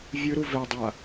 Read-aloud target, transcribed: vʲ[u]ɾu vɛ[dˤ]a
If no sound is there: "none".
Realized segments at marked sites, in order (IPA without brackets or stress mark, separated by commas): ɯ, dˤ